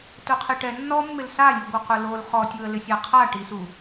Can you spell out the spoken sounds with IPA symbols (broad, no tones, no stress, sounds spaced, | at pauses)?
t ʊ qʰ e ʈ ɛ nː ɔ mː ɪ l s a lʲ u ɡʷ ɪ q ʊ l o l χ ɔ tʲ u ə̯ l ɪ sʲ a qʰ a ʈ i s u